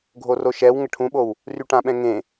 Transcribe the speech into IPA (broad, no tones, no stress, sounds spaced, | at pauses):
ɡʱ o r o ʃ ɛ w ŋ ə ʈʰ ũ ɓ o w | r y ʈ ã ɓ ɛ̃ ŋ ẽ